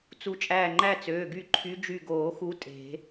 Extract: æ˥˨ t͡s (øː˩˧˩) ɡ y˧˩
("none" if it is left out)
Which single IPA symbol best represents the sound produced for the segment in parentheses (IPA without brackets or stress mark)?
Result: øː˩˧˩